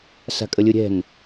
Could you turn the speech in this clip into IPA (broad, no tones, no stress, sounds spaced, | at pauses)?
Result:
s a̤ kʼ ə lʲ ɯ ɾʲ ɛ̤ n